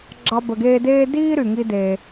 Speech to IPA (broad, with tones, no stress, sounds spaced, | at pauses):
ɡ͡ǁ ɑ˧ b ə˩ ɡ eː˧ d eː˥ d iː˥ ɾ y˩ ŋ i˧ d e˩